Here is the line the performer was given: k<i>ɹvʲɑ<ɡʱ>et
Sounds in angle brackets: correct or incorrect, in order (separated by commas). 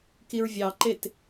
correct, incorrect